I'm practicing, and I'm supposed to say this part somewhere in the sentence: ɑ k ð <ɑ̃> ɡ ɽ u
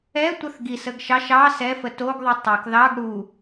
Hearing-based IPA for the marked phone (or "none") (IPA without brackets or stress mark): ɑ